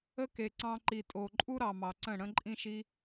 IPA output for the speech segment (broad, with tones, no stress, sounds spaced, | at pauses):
ə˦ k e˨ ǀ ɑ̃˧ ǃ i˨ tʼ o˨ ǃʼ u˦ ɾ ɑ˨ m ɑ˨ ǀ ə̃˦˨ ɽ ə̃˦ ǃʼ ĩ˦ ʃ i˦